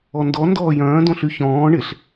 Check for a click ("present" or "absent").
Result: absent